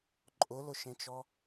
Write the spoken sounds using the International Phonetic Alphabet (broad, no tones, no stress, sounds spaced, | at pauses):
ǃʼ ʊ l ʊ ʃ ẽ t͡ʃ ɔ